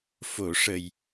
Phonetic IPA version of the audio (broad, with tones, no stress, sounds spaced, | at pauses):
f o˨˩˨ ʂ ə˨˩ j